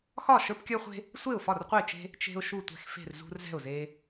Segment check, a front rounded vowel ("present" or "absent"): absent